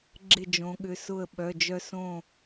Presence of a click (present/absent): present